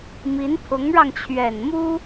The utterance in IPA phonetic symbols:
mi˧˥npʰʊ˧˥ŋɻɑ˧ŋ t͡ɕʰɥɛ˨˩nmu˥

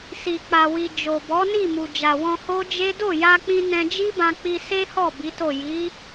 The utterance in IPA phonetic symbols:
si˨k͡pa˨wi˨ d͡ʒo˨ bɔ˨˦ni˦˨mu˨ d͡ʒa˨wɔ̃˧ ho˦d͡ʒe˦ do˦˨ja˧k͡pĩ˧ nɛ̃˧d͡ʒi˦bã˧k͡pi˧ se˦hɔ˦˨ bi˨˦to˦˨ ji˨˦

